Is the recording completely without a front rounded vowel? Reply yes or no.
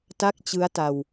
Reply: yes